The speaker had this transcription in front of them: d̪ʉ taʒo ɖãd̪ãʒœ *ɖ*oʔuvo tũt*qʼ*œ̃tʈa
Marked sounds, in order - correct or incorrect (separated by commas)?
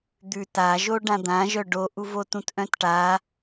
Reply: correct, incorrect